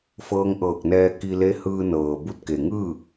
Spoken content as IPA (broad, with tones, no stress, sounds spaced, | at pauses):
f ɤː˧ ŋ ʔ ɤː˧˩ k̚ n ɛː˧ k i˧ l e˧˥ h ɯː˧ n ɤː˩ b u˧ t̚ k e˩ ŋ ɯː˥˨